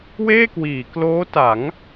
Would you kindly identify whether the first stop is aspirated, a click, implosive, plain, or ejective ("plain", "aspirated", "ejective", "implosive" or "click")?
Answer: plain